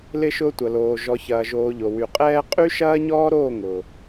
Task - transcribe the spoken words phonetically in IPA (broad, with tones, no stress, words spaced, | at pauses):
lɪ˧ ʃʊː˧tʷɐ˨loː˨ ʒɔ˨çɐː˨ʒoː˨ ʎo˨wy˨qʼɛː˦ qʼy˦ʃɐː˦ɲɔː˦ɾoː˦˨ ŋʊ˨